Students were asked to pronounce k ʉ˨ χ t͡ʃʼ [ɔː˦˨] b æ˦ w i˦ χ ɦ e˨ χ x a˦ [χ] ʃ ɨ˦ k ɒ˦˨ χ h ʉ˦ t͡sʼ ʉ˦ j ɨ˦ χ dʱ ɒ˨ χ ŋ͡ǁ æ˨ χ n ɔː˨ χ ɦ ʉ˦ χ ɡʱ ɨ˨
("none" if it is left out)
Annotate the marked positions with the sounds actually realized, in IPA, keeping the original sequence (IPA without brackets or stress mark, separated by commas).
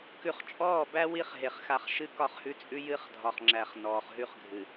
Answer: ɔː˦˨, χ